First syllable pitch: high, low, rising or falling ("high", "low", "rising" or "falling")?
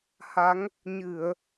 rising